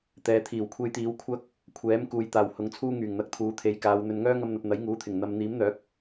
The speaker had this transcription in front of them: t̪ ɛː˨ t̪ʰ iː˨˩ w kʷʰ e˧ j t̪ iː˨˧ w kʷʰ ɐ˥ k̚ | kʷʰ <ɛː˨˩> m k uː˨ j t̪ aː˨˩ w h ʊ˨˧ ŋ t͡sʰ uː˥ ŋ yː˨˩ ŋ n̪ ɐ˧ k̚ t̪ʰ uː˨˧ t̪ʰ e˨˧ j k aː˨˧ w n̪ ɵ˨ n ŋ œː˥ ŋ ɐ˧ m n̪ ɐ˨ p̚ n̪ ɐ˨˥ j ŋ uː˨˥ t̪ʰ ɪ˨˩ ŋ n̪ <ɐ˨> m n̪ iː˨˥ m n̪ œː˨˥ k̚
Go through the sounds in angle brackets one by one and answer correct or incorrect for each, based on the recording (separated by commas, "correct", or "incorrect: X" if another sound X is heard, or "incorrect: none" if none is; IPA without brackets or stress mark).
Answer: incorrect: ɛː˨˥, correct